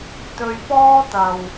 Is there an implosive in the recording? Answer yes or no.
no